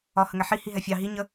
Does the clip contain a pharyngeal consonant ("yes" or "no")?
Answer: yes